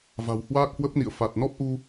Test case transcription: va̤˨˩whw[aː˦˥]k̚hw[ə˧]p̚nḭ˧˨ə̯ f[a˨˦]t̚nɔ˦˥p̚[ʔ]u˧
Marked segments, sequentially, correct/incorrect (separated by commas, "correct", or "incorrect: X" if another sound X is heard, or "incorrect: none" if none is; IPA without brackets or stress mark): correct, incorrect: ə˦˥, incorrect: a˨˩, correct